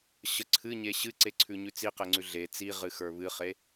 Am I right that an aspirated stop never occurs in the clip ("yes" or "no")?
no